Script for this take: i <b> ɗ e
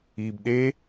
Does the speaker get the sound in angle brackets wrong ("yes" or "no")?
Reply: no